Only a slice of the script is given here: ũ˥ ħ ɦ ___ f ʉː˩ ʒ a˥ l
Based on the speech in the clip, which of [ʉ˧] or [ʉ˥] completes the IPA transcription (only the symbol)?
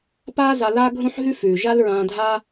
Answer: ʉ˥